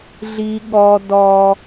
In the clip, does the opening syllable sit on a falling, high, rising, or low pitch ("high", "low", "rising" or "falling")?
high